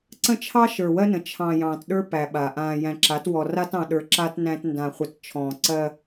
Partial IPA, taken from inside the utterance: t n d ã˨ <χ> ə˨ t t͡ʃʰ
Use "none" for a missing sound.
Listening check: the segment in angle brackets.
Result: χʷ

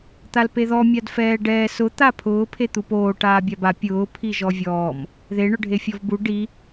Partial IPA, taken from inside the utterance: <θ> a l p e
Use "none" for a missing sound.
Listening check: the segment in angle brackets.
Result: t̪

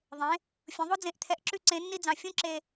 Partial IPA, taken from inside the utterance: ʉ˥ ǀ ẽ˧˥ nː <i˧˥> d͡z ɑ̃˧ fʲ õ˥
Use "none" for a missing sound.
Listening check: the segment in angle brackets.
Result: i˥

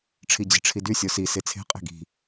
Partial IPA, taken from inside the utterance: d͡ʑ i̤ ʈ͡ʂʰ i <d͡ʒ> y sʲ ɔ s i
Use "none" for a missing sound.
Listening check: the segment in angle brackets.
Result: d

